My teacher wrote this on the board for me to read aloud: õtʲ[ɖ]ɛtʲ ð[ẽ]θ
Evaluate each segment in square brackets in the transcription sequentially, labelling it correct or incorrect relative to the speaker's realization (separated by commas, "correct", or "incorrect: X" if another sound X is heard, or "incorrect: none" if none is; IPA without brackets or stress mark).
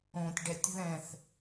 correct, incorrect: ɛ̃